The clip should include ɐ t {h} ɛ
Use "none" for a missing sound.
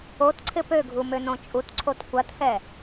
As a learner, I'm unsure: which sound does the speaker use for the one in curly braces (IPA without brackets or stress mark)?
h